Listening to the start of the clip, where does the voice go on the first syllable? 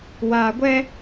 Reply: low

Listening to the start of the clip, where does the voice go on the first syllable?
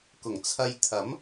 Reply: low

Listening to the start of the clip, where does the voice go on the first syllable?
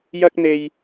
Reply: high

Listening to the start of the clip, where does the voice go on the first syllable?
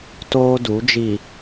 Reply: high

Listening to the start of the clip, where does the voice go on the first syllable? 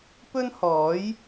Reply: high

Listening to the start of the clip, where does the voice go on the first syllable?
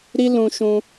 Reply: high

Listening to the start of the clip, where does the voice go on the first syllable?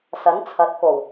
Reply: rising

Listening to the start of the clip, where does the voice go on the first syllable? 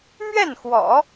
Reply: falling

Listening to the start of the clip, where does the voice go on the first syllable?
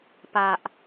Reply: low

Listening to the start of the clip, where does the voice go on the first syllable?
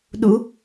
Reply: rising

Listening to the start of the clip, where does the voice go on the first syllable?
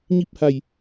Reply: falling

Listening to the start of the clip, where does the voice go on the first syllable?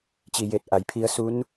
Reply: low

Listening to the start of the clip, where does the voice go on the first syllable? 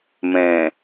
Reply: low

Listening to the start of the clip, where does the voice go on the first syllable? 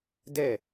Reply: falling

